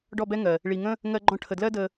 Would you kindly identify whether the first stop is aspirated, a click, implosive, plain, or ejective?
plain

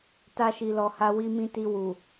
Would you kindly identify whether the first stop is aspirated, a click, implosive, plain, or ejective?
plain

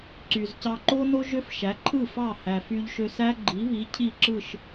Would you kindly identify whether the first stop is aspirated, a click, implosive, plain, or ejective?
click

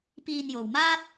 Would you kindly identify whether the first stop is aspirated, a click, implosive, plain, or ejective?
plain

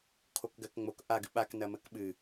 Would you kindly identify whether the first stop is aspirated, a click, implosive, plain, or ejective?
aspirated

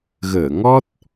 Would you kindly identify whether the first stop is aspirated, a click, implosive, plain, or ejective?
plain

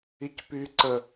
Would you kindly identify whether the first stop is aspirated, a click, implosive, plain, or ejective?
plain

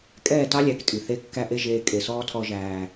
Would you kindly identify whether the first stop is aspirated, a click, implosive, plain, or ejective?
ejective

